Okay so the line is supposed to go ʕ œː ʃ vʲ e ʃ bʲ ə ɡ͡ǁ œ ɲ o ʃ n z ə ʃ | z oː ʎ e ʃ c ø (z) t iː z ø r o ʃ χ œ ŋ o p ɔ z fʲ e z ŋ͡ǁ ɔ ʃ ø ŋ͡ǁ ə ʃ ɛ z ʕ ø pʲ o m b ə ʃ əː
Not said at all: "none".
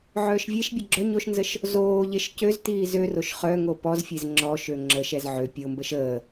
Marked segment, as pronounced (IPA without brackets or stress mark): z